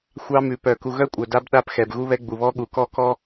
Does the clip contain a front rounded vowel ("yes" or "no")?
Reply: yes